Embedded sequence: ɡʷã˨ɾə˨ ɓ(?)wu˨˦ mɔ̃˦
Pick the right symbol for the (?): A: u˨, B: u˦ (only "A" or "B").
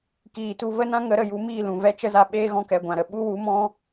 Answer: B